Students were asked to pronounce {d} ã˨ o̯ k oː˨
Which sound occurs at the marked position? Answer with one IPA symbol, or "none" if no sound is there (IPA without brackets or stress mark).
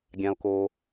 ɡʲ